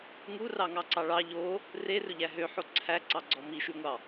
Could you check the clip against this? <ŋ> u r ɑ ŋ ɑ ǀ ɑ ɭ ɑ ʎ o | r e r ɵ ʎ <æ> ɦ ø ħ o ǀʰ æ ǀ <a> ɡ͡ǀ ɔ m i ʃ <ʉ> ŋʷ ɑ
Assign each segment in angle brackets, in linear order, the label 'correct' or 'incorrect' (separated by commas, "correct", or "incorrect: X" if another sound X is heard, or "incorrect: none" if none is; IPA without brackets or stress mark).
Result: correct, correct, incorrect: ɑ, correct